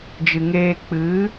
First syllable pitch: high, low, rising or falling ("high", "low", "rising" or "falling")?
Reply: low